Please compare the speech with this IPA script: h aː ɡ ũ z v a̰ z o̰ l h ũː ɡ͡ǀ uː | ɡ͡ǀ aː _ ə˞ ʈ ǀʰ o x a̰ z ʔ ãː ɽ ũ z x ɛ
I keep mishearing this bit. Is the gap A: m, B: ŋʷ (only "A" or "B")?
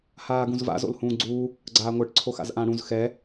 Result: B